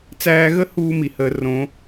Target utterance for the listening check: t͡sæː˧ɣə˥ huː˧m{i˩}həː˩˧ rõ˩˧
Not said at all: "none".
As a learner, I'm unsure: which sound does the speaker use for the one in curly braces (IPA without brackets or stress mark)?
i˩